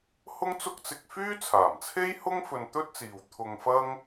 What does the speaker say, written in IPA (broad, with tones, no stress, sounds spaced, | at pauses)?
h ʊ˥ ŋ t͡s ʊ˥ k̚ t͡s ɪ˧ k̚ f yː˥ t͡sʰ aː˨˩ m t͡sʰ e˥ j h ʊ˥ ŋ f ɵ˧ n t̪ ɵ˥ t̚ t͡s iː˨ w t̪ʰ ʊ˧ ŋ f ɐ˥ ŋ